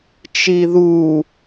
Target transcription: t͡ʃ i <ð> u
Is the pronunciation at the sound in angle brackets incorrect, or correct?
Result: correct